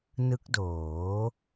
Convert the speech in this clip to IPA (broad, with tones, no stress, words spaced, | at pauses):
nɯ˦˥k̚doː˩˦